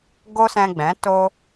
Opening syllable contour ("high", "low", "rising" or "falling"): high